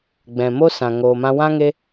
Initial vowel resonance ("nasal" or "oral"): nasal